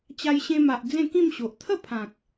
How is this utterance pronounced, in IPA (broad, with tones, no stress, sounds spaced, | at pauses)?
t͡ɕ a˧ j ɕ ẽ˧ m a˨ ʔ d͡z ẽ˥˧ k ĩ˥˧ m ɕ o˨ ʔ t̪ʰ ə˥˧ pʰ ã˨ k̚